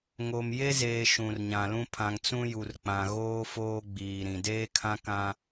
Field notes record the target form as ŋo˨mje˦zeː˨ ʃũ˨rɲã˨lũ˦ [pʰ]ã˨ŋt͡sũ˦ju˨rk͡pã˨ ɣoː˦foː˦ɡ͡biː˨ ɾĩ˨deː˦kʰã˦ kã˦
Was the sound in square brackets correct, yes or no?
yes